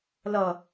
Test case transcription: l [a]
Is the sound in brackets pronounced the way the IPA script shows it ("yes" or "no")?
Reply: no